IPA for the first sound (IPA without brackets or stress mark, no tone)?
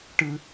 ʈ